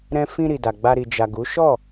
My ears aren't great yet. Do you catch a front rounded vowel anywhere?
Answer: no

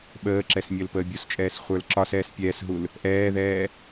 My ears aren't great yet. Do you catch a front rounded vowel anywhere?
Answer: no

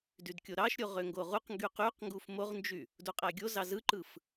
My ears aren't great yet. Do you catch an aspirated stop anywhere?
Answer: no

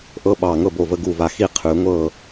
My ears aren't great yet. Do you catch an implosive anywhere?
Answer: yes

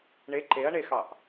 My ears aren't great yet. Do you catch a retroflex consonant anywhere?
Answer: yes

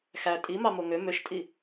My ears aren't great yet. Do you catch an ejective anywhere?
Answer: yes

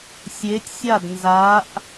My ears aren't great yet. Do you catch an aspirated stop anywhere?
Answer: no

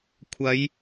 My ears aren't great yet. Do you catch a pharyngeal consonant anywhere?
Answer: no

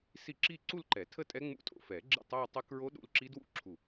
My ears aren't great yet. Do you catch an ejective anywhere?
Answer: yes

